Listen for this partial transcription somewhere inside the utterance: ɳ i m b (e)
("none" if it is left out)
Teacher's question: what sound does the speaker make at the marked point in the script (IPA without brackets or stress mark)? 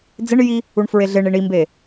e